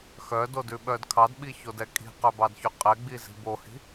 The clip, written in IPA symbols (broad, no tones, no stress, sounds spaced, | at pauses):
x œ d o d ʉ ɓ œ d kʰ ɑ d ɓ i ç o d ɛ kʼ i̤ q œ b ɑ d ç ʉ qʼ ɛ ɡ͡b i z i̤ b o h i̤